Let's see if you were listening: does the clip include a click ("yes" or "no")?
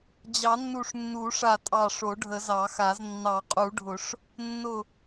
no